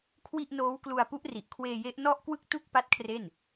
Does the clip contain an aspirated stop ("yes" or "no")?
yes